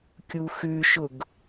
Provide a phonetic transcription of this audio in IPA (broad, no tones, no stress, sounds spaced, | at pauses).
kʲ u x ʉ ʃ ʊ ɡ